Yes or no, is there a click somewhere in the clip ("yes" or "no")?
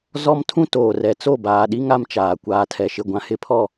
no